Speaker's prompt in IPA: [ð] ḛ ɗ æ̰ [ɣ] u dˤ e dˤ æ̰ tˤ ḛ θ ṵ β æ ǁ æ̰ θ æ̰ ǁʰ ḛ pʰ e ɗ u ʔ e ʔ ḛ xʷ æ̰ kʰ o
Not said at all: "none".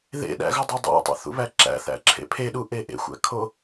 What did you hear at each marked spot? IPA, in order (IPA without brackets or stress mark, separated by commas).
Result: ð, ɣ